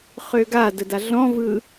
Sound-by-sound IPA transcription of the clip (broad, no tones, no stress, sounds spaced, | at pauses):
χ ø ɡ a d ə d a ɮ ɔ̃ v ɯ